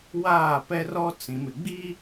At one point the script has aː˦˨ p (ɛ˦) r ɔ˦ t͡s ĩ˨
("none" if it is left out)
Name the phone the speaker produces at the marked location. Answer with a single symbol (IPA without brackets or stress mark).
ɛ˦